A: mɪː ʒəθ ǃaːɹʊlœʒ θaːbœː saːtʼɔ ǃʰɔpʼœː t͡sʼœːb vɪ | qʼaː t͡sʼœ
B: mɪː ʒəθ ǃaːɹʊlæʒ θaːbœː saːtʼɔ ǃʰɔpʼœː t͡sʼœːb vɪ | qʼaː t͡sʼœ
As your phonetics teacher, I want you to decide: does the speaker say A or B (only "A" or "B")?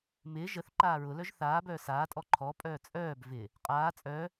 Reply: A